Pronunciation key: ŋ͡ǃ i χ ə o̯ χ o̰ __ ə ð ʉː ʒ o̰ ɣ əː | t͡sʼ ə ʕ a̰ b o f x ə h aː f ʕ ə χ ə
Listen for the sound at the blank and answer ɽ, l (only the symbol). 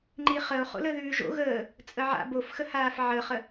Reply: l